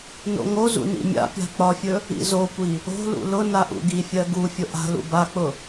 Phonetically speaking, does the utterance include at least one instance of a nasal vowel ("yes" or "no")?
no